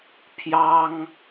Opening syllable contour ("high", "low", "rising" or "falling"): high